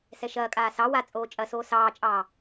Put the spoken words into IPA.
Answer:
sɛʃɐːkʼaː sɑ wa t͡sʼoːt͡ʃʼɐsoː sɑːt͡ʃʼɑː

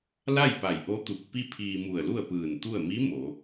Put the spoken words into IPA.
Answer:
la˥˨jpa˧˩j ʔo˧˥t̪u˧˩k̚ pi˥˨pʰiː˧mu˧˩ə̯lu˥˨ə̯ pɯː˧˩nt̪u˥˨ə̯ mi˧˥ mo˩˧

